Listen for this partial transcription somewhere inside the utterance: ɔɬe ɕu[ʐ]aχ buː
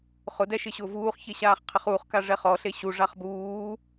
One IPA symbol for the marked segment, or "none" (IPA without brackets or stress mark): ʐ